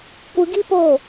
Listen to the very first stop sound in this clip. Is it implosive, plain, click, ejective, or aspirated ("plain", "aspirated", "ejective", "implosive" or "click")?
plain